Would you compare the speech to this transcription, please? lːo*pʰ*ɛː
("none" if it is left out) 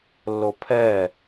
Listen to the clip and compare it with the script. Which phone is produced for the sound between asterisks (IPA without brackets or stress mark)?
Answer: pʰ